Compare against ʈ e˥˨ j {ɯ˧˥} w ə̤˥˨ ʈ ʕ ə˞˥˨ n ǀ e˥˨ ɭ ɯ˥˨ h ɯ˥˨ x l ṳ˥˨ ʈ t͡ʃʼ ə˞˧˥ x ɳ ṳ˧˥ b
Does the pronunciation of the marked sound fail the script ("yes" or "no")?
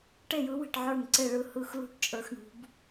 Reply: no